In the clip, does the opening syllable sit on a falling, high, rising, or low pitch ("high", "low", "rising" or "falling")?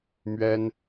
high